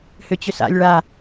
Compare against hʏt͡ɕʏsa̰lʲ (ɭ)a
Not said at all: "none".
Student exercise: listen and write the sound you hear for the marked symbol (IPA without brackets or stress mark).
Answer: ɭ